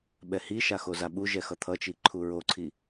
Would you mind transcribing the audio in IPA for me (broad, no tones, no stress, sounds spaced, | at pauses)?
ɓ ɛ h i ʃ a x o z a ɓ u ʒ ɛ x ʌ t̪ʰ ʌ t͡ʃ i ǃʰ u ɹ o ǀʰ i